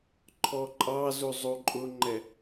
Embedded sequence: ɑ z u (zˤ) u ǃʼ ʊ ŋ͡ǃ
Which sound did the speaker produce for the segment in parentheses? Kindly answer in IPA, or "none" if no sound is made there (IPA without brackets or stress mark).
zˤ